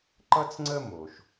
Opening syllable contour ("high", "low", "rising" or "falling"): high